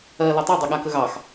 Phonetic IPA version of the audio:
ɜ l ə tˤ ɘ dˤ ɘ ɠ a k ə ɣ ɑ x

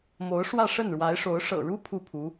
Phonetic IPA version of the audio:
m o˧˥ ʊ̯ ʂ w ä˥˧ ʂ ə˥˩ n ɻ w a˧˥ ɪ̯ ʂ o˧˥ ʊ̯ ʂ ɤ̰˨˩ ɻ u˥ pʰ u˥˩ pʰ u˧˥

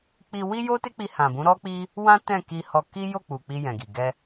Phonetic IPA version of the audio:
k͡p i˧ w i˦ j o˦ t e˦ k͡p i˧ h ã˨ b ũ˨˦ ɾ ɔ˦ k͡p i˦ | w ã˦ t ɛ̃˦˨ k i˧ h ɔ˧ k i˦ j o˦˨ k͡p u˨ k͡p i˧ j ɛ̃˨ ɡ i˨ ɡ ɛ˧

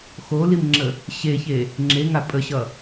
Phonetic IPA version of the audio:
x o l i m ŋ͡ǁ ə | ɕ e ç e | ŋ͡ǁ e ŋ a pʼ ə ɕ ʌ

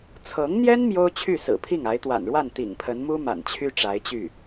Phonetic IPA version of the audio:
t͡sʰ ɤ˧˥ ŋ n̪ j ɛ˥ n m j o˥ ʊ̯ t͡ɕʰ y˥˩ s ɹ̩˨˩ pʰ i˥˩ ŋ a˧˥ ɪ̯ t̪ w a̰˨˩ n ɻ w a˥˩ n t̪ ḭ˨˩ ŋ pʰ ə˧˥ n m u˥ m a̰˨˩ n t͡ɕʰ y˥ ʈ͡ʂ a˧˥ ɪ̯ t͡ɕ y˥˩

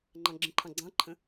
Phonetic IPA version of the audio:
ŋ͡ǃ ɑ̃ ɡ͡ǁ ə̃ ǃʰ ɑ̃ ɡ͡ǀ ɑ̃ ǃʰ ə̃

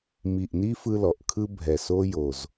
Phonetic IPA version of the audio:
m i˨˩ ʔ n i˦ f ɯ˦ l ɔ˨˩ ʔ kʰ ɯ˦ bʱ ɛ˨˩ s o˦ j o˨˩ z

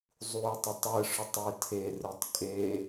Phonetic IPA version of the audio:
zˤ u ɪ̯ tˤ ʊ tˤ ɯ ʂ ʊ tˤ ʊ ɪ̯ tʰ e r ɯ tˤ kʼ e

